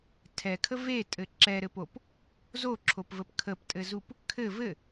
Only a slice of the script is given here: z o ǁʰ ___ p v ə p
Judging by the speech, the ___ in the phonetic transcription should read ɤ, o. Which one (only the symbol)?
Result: o